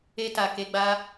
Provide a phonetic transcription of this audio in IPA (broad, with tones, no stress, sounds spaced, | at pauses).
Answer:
e˦ t a˧ k e˧ ɡ͡b a˦